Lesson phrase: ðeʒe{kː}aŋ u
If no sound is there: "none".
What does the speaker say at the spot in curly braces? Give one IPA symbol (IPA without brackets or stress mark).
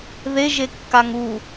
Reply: kː